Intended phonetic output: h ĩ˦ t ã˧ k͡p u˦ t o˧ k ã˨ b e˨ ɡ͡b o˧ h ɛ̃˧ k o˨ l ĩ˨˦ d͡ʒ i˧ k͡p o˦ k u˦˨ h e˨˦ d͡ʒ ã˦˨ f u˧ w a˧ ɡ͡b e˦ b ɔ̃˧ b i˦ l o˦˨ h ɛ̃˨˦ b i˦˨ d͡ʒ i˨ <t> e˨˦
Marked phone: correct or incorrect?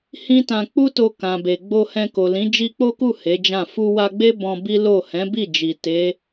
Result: correct